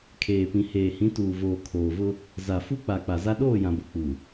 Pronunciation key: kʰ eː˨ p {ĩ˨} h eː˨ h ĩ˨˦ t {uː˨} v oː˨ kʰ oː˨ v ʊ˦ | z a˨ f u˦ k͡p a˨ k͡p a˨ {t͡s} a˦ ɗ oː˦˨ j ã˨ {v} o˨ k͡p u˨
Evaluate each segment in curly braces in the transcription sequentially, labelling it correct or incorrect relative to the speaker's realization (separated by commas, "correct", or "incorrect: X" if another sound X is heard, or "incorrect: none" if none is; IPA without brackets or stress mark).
correct, correct, incorrect: z, incorrect: b